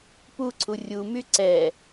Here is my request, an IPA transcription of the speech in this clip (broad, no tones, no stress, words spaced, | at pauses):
puǀʰu rʲumy ǀɛ